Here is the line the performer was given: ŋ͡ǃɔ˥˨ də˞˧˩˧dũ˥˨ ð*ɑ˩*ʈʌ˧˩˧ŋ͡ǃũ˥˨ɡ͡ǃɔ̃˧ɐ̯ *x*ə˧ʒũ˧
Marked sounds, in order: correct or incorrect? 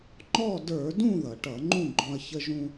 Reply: incorrect: ʌ˩, incorrect: ç

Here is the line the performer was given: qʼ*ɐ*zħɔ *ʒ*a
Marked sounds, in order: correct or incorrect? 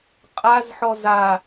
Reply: incorrect: a, incorrect: z

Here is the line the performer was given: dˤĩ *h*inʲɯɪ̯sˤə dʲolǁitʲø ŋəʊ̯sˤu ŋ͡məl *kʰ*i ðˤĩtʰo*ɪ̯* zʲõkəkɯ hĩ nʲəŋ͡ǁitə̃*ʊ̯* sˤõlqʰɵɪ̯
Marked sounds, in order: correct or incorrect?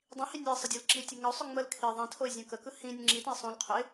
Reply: correct, correct, correct, incorrect: ɪ̯

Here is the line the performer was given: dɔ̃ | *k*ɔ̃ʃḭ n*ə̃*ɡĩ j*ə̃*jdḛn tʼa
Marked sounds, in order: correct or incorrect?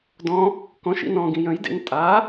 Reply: correct, incorrect: ɔ̃, correct

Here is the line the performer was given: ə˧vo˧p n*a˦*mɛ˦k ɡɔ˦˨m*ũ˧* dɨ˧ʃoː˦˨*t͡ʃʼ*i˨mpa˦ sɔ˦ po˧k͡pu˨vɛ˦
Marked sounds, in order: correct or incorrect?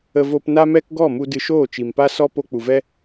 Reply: correct, incorrect: u˧, incorrect: t͡ʃ

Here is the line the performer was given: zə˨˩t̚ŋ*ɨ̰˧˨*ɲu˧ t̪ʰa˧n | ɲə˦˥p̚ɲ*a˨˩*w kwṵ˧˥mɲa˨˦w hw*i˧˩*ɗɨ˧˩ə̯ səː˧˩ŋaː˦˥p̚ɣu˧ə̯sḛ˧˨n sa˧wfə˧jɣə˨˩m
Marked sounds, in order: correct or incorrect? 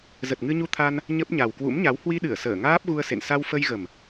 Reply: incorrect: ɨ˧, correct, incorrect: i˧

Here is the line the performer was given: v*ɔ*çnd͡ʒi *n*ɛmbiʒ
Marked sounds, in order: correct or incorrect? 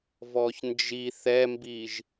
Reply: correct, incorrect: θ

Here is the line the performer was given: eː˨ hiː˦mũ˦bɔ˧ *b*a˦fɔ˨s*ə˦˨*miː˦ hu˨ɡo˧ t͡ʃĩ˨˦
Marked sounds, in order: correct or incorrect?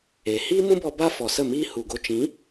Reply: correct, correct

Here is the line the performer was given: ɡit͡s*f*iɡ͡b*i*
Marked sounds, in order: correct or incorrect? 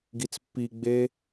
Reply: incorrect: pː, incorrect: e

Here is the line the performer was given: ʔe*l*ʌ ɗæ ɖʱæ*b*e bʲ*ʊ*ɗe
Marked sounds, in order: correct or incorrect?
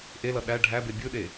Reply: correct, correct, incorrect: ɯ

